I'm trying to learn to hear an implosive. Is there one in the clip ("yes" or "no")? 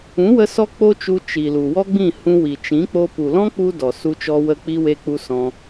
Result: no